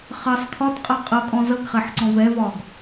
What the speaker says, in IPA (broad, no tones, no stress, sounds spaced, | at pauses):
χ ɜ sˤ kʰ ɒ t qʼ ʌ qʼ ʌ kʼ ɔ̃ z ʌ ɡ χ ɛ ħ ǀ ɔ̃ v ɛ v ɒ ɡ